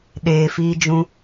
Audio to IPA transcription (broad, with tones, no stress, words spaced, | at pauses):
ɗeː˨fiː˧d͡ʒũ˧